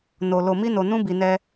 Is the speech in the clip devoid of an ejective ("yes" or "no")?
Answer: yes